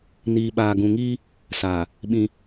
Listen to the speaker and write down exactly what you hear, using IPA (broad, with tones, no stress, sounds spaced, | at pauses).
n iː˨ ɓ aː˨ ɡ ũ˨ ŋ iː˦ | s aː˨ | ɓ ĩ˦